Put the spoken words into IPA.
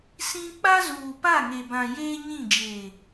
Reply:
s ĩ˦ k͡p a˦ z uː˨ p a˦˨ ŋ e˨ b ã˨ j eː˦ ɲ ĩ˦˨ d͡ʒ eː˨

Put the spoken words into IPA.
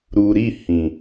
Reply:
ɾ uː˨ ɾ i˦˨ h ĩ˨

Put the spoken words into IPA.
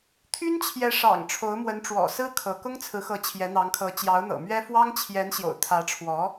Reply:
t̪ʰ y˥ n t͡ɕʰ j ɛ˧˥ ʂ ɑ̰˨˩ ŋ ʈ͡ʂʰ o˧˥ ʊ̯ m w ə˧˥ n ʈ͡ʂ w ɔ̰˨˩ s ɹ̩˥ kʰ ɤ˧˥ k ʊ˥ ŋ t͡sʰ ɹ̩˧˥ x ɤ˧˥ t͡ɕʰ j ɛ˧˥ n̪ ɑ˧˥ ŋ kʰ ɤ˧˥ t͡ɕ j ɑ˧˥ ʊ̯ n̪ ɤ̰˨˩ m ɥ ɛ˥ f w ɑ˥ ŋ t͡ɕʰ j ɛ˧˥ n ɕ j o̰˨˩ ʊ̯ t̪ʰ ä˧˥ ʈ͡ʂʰ w ɔ˧˥

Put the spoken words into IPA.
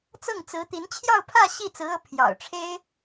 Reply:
t͡s ɤ˥˩ ŋ t͡s ɹ̩˧˥ t̪ i˧˥ n t͡ɕʰ j ɑ˥˧ ʊ̯ pʰ ä˥˧ ɕ i˥˩ t͡s ɹ̩˧˥ ɤ˧˥ pʰ j ɑ̰˨˩ ʊ̯ ʈ͡ʂʰ e˥ ɪ̯

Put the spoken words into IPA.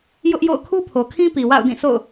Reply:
j ʊ˦ ʔ j o̰˦˨ ʊ̯ kʰ u˦ pʰ o˨ kʰ ĩ˦ p i˨ w a̰˦˨ ʊ̯ d ĩ˦˨ s o̰˦˨ ʊ̯

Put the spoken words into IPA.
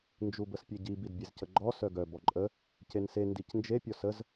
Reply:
n d͡ʒ u b ə s pʲ e ɟ i b i d bʲ e z c ə ɡ͡ǃ ɔ s œ ɡ œ b ɔ ǃʼ ə | c e n s e n d i c n d͡ʒ e pʲ ɔ s ə z

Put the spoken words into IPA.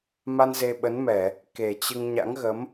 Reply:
m a˧ n z e˧ ɓ ə˨˦ n m ɛ˧˩˨ | k e˨˩ t͡ɕ ɨ˧ ŋ ɲ a̰˧˥ ŋ ɣ ə˨˦ m

